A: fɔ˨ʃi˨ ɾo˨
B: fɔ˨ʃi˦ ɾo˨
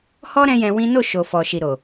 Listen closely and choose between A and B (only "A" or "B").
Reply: A